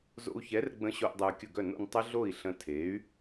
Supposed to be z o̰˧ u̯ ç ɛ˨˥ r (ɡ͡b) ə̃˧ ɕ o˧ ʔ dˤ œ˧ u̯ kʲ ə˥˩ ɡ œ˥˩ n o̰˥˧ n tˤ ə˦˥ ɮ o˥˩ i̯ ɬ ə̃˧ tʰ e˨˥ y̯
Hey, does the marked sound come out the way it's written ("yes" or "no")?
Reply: yes